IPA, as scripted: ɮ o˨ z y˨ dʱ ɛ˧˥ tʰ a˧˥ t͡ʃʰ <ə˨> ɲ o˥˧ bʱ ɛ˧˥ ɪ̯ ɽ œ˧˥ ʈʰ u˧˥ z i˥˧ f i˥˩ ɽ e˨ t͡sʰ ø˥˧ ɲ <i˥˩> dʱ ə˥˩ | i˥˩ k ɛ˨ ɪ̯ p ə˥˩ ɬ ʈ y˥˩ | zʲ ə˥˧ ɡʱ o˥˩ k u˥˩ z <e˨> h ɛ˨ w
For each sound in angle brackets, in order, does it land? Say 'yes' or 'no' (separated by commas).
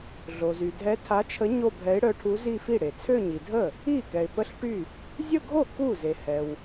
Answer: no, no, yes